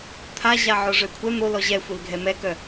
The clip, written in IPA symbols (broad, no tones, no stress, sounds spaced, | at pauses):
t̪ʰ a ʑ a ʕ o ʐ ø kʷʰ ɛ n̪ o l ɔ ʑ ɛ xʷ i l ɡʱ ɛ m ɛ k œ